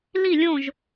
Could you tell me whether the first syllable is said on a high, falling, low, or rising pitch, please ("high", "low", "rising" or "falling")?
falling